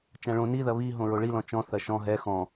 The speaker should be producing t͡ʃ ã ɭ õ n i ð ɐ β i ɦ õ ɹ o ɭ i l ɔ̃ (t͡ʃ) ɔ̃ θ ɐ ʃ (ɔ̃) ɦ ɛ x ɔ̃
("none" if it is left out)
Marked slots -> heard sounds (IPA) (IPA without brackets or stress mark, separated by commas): t͡ʃ, ɔ̃